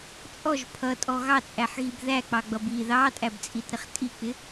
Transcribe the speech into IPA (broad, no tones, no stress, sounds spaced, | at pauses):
t͡sʼ ɔ ʒ pʰ ʌ tʼ ɔ ɣ ɑ t͡sʼ æ ħ ɣ i b ð æ k͡p ɑ ɡ͡b ʌ b i ð ɑ tʼ æ b t͡sʼ i t ɾ ɪ χ tʼ i k͡p ɪ